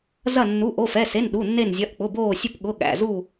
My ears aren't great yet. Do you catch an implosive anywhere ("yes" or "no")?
yes